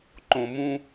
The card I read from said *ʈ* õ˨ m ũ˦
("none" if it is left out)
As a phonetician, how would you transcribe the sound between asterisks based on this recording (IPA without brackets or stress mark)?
ǃ